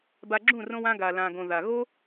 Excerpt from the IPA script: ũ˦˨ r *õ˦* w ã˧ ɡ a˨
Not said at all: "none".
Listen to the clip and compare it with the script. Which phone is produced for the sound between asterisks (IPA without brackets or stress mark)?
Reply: õ˧